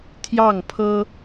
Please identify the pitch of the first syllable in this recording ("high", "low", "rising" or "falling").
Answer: falling